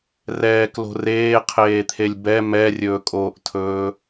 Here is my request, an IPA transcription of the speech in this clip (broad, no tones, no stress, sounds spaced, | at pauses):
r ɛː k l o̤ r eː qʰ eː t̪ʰ e lʲ b ɛ m ɛ rʲ ɵː kʼ oː ʔ tʰ ɵː